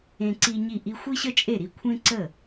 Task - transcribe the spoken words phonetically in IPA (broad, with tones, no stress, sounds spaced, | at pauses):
ẽ˥ ǀ i˥ ɲ i˥˨ ʔ i˥ xʷ i˥ ɕ ə˥ t͡ʃʼ e˥˨ ɾ i˥˨ kʷʰ ẽ˥ ǀ ə˥˨